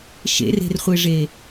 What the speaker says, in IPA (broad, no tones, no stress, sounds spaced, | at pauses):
ʃ ḛ r e̤ r χʷ e ʐ e